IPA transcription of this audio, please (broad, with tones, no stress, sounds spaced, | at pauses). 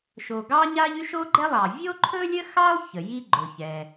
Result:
ʃ o˩ ɡ ɑ˥ ɲ a˥ ʎ y˥ ʃ o˥ ɡ͡ǃ ɛ˥ lˠ ɑ˩ vʲ o˥ ǃʰ ɵ˥ lʲ ə˥ x ɑ˥ lˠ ç ə˩ j i˥ ɡ͡ǃ ɵ˩ ç ɛ˩